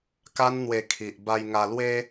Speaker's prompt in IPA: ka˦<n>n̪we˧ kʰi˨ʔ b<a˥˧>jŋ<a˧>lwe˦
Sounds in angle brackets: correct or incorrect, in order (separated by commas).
correct, incorrect, correct